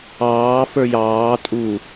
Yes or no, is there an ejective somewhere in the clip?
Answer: yes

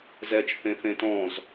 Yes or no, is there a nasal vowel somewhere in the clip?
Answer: yes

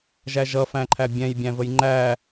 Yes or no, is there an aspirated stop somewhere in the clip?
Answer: yes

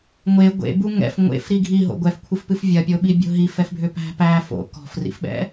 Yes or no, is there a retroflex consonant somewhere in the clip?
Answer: no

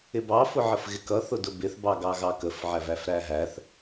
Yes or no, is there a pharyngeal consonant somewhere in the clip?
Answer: yes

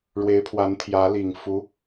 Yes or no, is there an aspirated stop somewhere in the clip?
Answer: yes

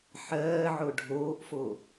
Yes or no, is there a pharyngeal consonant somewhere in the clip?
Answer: yes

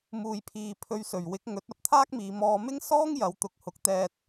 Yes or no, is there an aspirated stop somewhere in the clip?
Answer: yes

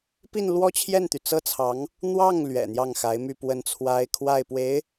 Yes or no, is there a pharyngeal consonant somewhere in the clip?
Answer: no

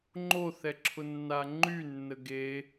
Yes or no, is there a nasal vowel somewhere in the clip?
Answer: no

